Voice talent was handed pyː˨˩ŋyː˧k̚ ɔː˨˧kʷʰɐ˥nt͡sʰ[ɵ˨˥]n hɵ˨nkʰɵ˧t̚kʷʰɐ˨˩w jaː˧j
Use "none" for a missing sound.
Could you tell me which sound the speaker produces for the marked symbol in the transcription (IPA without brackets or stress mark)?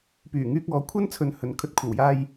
ɵ˨